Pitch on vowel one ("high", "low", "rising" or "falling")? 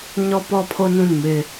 high